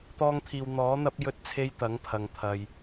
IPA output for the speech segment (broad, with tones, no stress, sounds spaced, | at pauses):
t̪ ɔː˧ ŋ t̪ʰ iː˨ w n̪ ɔː˨˥ n̪ ɐ˥ p̚ j ɵ˥ t̚ t͡sʰ e˥ j t̪ ɐ˨˥ ŋ pʰ ɐ˨ ŋ t̪ʰ ɐ˨ j